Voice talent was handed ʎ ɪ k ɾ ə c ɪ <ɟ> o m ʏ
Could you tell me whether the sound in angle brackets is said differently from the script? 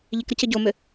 no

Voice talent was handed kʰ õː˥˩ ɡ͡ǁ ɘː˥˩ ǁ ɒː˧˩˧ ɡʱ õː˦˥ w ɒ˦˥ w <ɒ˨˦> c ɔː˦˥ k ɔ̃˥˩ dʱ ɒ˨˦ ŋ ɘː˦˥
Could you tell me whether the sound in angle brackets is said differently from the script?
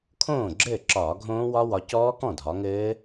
no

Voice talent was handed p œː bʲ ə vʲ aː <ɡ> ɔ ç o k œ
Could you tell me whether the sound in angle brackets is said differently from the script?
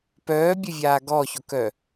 no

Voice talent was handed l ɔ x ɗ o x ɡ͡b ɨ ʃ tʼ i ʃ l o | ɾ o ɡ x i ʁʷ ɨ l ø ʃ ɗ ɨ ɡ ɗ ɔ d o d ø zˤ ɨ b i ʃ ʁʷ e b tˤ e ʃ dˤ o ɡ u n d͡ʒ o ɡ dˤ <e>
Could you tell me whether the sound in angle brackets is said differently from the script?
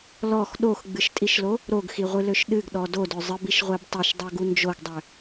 yes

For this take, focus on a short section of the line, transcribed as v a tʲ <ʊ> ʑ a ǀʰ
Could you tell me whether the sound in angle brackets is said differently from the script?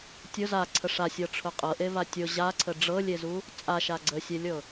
no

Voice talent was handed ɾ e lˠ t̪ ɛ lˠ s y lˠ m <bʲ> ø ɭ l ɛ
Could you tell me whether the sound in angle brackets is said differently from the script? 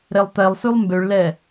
yes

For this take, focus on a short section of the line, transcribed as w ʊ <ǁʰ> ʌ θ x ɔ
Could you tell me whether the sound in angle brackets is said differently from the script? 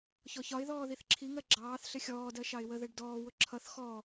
no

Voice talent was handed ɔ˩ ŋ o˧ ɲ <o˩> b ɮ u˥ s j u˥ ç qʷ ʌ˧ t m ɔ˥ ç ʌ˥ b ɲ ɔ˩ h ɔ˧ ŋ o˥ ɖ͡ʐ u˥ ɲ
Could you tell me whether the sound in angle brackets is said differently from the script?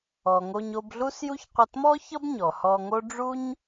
yes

